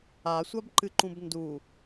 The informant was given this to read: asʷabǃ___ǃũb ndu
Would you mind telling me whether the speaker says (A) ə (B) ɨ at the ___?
B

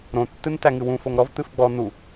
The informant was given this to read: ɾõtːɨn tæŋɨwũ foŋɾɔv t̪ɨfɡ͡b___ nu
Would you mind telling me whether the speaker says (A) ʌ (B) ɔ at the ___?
B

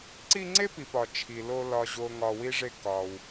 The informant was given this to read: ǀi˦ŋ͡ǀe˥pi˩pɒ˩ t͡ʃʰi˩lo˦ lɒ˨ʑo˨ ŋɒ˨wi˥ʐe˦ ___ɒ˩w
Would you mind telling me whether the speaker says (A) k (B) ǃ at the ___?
A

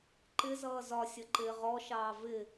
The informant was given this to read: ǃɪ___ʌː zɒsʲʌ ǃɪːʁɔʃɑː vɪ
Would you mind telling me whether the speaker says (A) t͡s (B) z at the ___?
B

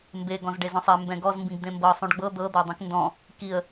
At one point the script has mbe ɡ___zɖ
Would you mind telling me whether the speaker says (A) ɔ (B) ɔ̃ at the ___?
B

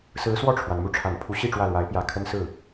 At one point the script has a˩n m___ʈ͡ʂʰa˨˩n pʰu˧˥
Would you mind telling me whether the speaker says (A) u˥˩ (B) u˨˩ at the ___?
A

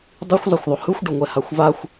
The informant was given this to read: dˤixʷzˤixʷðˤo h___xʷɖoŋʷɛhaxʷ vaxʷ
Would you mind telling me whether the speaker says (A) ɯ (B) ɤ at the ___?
A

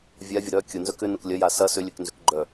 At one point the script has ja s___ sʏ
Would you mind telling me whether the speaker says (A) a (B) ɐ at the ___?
B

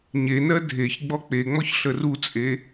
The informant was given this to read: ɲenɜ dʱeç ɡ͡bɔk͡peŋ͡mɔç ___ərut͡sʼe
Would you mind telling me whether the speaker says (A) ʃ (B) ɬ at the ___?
B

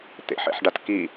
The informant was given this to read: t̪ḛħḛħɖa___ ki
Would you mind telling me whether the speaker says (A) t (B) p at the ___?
A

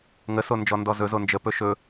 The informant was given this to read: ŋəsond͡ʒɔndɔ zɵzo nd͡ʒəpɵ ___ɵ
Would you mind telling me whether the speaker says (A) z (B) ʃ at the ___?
B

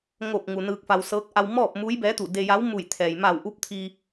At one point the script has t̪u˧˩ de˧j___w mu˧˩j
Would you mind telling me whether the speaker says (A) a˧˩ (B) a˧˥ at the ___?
B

